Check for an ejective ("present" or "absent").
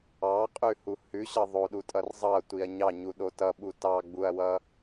present